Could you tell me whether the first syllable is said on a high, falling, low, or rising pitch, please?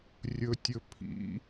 low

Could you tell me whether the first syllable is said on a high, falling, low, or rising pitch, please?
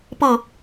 falling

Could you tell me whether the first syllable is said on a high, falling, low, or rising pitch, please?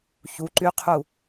rising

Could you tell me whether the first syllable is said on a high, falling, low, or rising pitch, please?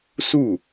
falling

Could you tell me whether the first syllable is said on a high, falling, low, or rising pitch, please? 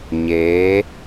rising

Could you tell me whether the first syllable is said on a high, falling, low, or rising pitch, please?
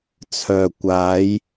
low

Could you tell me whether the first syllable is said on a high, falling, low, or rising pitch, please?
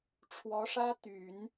rising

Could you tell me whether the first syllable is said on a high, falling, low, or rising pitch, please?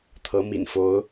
rising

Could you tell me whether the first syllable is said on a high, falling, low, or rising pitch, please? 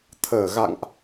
low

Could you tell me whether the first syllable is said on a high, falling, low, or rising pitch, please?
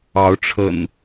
rising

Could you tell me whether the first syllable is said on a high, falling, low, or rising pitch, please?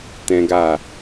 high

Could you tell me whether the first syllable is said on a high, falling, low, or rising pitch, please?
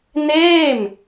falling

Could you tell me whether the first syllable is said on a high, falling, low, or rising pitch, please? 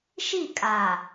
falling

